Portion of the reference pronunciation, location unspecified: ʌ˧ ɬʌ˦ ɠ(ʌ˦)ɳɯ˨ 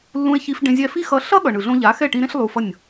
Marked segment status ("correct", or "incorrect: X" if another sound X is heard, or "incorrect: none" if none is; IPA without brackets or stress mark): incorrect: ʌ˨